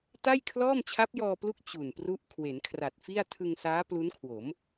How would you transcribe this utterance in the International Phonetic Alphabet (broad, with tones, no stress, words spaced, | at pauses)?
ta˥˩jkʰlɔː˥˩m t͡ɕʰa˦˥p̚jɔː˧plu˦˥k̚ t͡ɕu˨˩npru˦˥ʔ kʰwe˩˦nkʰra˨˩t̚fi˥˩a̯ tʰɯ˧ŋsaː˦˥ plu˦˥nkʰwo˩˦m